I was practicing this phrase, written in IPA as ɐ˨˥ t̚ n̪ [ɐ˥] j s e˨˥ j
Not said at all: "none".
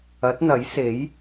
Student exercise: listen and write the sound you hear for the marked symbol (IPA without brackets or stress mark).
ɐ˨˥